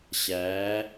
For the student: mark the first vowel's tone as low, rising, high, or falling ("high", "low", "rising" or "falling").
rising